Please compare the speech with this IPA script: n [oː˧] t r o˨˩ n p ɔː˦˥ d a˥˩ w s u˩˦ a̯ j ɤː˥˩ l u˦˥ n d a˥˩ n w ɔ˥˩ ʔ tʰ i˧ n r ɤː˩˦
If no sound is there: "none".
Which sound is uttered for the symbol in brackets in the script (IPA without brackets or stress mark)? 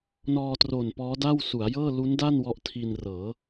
ɔː˧